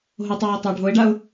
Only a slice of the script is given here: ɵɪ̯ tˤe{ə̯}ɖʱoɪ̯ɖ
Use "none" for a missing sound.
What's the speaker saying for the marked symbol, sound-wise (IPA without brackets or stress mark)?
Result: ʊ̯